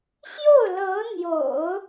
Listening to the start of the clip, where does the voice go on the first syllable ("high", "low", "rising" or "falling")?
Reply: falling